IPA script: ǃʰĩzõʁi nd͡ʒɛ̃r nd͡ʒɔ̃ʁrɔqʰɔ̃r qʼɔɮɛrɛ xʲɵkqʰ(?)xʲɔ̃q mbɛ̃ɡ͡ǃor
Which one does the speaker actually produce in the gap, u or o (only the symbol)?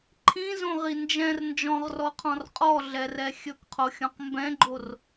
o